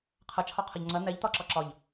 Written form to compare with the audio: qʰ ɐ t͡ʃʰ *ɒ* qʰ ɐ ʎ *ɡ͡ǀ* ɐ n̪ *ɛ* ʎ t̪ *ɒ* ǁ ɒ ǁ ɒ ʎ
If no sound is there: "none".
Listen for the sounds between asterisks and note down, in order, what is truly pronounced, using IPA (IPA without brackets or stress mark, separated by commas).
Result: ɒ, ŋ͡ǀ, ɛ, ɒ